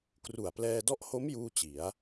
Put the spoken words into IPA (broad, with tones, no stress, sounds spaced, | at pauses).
k r u˨˩ a̯ p l ɛː˧ d ɔ˦˥ ʔ h o˦˥ m j uː˥˩ t͡ɕ i˩˦ a̯